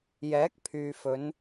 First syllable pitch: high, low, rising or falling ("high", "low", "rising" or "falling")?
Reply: rising